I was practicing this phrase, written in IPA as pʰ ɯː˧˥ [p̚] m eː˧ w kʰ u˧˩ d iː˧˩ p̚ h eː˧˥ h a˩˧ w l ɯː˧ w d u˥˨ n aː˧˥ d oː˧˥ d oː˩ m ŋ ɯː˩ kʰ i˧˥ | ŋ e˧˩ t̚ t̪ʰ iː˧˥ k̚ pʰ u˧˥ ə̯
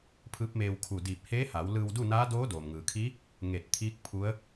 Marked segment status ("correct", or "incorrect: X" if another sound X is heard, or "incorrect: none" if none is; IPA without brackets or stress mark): correct